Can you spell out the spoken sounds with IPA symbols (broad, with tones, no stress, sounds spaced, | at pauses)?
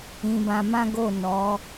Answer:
ĩ˧ b ã˧ m ã˦ ɡ o˦˨ n ɔ˨˦